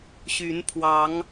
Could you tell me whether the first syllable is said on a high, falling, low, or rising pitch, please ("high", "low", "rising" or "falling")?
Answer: rising